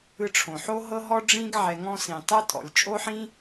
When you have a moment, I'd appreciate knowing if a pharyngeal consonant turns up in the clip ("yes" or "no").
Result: yes